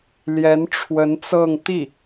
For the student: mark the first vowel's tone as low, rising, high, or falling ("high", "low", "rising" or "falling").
rising